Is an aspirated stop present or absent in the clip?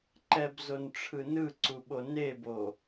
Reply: present